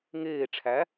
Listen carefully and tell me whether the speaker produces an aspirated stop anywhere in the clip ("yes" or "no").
yes